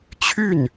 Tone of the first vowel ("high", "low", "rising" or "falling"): falling